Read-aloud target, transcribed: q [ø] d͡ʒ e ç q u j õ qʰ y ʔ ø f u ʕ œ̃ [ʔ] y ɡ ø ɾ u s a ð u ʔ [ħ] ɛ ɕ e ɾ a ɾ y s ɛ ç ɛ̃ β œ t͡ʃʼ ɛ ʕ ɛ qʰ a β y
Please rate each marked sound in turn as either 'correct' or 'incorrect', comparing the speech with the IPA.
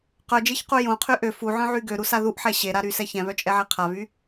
incorrect, incorrect, correct

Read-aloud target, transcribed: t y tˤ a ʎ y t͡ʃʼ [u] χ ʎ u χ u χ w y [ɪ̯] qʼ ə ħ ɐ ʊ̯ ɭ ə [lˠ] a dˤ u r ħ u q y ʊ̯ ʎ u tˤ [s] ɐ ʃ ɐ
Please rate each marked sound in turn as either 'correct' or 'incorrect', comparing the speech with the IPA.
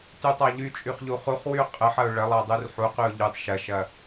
incorrect, incorrect, correct, incorrect

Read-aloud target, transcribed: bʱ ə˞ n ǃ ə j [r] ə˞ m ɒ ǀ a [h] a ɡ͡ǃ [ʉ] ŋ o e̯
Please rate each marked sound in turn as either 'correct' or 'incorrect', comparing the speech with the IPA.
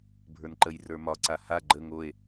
correct, correct, incorrect

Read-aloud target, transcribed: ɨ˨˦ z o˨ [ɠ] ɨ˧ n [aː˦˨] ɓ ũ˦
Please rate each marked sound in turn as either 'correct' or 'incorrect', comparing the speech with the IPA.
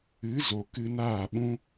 incorrect, correct

